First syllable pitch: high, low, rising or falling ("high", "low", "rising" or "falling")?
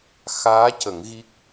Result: rising